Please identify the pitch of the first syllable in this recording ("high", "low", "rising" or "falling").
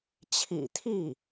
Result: low